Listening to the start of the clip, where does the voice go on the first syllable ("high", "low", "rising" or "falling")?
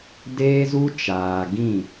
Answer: high